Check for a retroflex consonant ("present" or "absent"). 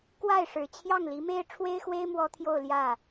present